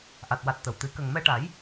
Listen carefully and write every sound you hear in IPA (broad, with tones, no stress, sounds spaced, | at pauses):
ʔ a˨˩ t̚ w a˨˩ t̚ t̪ ə˨˩˨ w t̪ ɨ˨˩˦ k ə˨˩ ŋ m ɛ˧ ʈ a˨˩˦ j